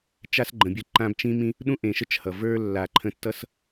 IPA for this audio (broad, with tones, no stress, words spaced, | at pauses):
t͡ʃa˦sɡ͡ǃə̃˨ bʲə˦ǃã˦bt͡ʃĩ˦mĩ˦ | ɗũ˦ʔẽ˨ʃə˦t͡ʃ hʌ˨ və˞˦lːa˨ ǃʰə̃˧tːʌ˦s